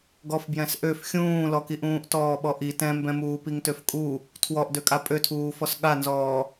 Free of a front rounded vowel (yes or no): no